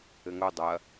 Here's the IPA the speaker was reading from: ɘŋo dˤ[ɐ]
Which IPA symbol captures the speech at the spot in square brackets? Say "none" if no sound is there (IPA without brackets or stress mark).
ɐ